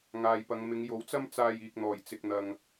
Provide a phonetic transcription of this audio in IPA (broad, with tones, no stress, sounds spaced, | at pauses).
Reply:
ŋ aː˨ j p ɐ˨˧ ŋ m ɪ˨˧ ŋ j o˨˥ w t͡s ɐ˥ m t͡s aː˧ j iː˨ k̚ n̪ ɔː˨˩ j t͡s ɪ˨ k̚ n̪ ɐ˨ ŋ